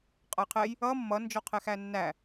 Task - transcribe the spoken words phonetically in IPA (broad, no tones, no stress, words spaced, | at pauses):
qʼʌjqʰɛj | ʌ mːʌ nd͡ʒɔqʰɛxænːæ